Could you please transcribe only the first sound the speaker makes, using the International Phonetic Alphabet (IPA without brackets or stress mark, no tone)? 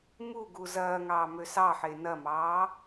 m